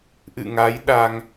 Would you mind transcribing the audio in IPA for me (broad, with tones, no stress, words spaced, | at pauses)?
ʔɨ̰˧˨ŋa˨˦j ɗa˧ŋ